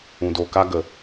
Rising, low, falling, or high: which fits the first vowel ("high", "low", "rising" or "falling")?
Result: low